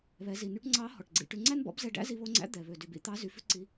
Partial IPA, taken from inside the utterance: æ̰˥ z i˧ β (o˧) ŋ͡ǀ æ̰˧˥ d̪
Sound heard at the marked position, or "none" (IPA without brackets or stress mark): o˧